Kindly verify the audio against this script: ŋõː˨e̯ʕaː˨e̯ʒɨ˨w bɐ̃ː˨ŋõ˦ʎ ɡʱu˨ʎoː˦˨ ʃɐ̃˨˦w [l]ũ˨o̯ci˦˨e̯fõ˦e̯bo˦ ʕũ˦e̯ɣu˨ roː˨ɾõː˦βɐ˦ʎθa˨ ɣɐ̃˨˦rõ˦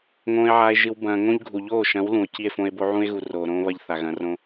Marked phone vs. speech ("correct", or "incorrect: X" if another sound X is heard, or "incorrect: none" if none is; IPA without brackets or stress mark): correct